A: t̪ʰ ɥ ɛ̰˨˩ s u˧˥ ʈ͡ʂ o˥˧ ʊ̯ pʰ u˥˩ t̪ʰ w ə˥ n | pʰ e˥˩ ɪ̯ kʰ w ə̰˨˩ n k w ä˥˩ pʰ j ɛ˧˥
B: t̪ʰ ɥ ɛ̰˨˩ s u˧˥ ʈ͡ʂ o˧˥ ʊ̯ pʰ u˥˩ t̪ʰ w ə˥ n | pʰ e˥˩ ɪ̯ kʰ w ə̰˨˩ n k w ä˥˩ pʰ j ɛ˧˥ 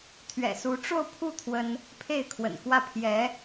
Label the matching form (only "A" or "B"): A